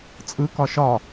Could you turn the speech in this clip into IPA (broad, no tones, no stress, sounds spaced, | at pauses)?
t͡sʼ ɯ k ɒ ʃ ɒ